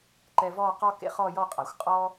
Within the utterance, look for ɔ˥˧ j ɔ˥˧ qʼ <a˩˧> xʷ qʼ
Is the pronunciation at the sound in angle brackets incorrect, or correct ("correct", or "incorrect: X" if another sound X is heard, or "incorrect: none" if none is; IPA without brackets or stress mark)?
correct